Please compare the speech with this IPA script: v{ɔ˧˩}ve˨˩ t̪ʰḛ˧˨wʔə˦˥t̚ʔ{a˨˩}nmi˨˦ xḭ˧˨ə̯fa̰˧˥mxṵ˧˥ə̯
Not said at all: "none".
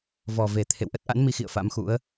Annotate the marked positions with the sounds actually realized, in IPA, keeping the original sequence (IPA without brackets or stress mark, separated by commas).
ɔ˨˩, a̰˧˥